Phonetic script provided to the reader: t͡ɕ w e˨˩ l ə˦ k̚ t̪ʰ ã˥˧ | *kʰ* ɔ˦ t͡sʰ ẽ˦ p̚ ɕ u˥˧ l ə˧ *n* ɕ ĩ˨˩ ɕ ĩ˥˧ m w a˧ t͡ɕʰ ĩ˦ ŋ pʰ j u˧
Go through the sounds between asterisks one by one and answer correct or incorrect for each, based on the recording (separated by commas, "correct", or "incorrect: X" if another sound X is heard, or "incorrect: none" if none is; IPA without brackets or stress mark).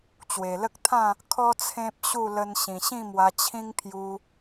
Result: correct, correct